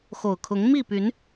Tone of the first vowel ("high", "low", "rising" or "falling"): low